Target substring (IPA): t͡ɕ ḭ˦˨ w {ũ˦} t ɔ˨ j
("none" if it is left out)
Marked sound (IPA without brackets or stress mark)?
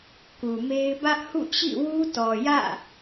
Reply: u˦